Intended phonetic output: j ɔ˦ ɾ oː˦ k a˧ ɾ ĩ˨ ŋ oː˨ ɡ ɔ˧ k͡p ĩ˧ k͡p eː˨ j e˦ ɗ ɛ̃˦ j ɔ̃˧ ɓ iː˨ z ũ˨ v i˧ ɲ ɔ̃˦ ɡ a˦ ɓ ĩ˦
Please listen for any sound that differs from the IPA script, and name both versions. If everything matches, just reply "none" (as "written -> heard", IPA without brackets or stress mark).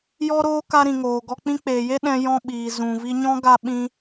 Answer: none